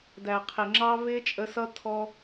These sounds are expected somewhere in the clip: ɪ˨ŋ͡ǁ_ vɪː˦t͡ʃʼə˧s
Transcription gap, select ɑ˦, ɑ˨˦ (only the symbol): ɑ˦